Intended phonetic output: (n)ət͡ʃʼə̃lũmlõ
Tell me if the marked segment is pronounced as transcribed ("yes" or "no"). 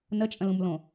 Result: yes